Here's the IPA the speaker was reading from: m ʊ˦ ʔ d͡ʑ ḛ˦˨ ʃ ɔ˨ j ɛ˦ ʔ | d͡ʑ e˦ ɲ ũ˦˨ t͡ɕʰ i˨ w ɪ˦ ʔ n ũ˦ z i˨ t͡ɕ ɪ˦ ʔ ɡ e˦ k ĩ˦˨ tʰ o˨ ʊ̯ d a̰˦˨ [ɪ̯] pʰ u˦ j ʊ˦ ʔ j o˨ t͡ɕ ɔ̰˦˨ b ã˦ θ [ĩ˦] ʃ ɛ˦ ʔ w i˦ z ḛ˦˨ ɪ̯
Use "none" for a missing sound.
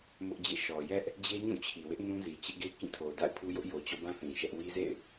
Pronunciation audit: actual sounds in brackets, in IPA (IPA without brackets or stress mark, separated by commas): ɪ̯, ĩ˨